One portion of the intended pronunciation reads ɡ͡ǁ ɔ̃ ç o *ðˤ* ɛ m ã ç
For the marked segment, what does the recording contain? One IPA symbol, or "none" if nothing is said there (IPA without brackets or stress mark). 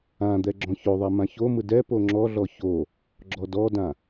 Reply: ðˤ